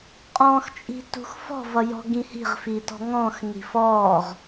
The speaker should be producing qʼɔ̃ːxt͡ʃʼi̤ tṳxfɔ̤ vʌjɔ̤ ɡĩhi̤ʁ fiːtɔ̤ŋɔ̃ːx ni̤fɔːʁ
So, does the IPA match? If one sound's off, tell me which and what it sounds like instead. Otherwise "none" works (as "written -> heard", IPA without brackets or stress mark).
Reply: none